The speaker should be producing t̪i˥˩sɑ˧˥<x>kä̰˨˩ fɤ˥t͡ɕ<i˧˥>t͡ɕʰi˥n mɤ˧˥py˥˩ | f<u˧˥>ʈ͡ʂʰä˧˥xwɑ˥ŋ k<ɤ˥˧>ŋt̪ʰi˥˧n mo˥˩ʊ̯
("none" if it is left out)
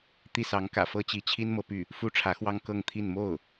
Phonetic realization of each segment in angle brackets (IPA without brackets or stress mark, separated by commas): ŋ, i˧˥, u˥, ɤ˥˧